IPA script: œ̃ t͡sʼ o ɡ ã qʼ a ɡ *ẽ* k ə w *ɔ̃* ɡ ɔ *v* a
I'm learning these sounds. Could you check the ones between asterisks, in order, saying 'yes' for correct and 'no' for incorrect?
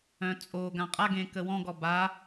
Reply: yes, yes, no

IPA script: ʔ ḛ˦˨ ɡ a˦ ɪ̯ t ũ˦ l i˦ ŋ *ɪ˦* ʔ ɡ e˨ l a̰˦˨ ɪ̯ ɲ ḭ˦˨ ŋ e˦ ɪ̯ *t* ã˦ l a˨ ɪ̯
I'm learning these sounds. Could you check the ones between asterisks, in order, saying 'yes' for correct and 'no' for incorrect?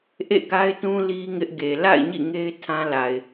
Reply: yes, no

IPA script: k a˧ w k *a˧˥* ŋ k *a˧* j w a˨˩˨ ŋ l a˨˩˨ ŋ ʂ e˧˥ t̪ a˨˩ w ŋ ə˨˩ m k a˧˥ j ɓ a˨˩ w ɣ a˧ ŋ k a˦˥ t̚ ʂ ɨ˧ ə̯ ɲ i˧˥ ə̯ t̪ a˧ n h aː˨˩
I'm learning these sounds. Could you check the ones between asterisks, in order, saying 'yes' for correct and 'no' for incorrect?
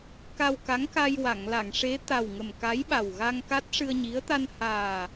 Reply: yes, yes

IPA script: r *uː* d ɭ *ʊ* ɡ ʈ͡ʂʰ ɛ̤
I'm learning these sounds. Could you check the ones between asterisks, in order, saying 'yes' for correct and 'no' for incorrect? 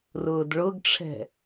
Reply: no, yes

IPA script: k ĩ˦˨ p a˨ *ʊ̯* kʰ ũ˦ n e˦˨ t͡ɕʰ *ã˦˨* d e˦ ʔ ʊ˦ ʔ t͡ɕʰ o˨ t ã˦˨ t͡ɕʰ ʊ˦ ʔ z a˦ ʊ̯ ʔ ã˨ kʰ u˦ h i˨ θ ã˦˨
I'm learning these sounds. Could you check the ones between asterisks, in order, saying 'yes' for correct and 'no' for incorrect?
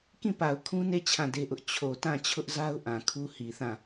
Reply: yes, yes

